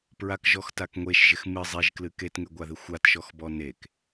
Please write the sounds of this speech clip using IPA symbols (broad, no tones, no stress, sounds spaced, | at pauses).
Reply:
p ɹ a k ʒ ɔ x t a k ŋʷ e ʃ ʒ ɪ x m ɨ zˤ e ʒ k l ɨ k e t ŋ e ɡʷ a ð ɪ xʷ a t ʃ ɔ x b ɔ n e k